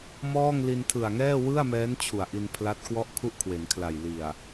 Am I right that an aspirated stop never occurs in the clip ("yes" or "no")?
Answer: no